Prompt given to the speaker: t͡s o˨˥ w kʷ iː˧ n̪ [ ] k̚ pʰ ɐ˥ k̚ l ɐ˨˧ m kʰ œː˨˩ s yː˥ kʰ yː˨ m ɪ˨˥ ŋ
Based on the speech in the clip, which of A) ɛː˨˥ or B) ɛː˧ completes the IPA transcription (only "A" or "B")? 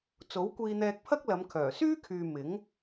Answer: B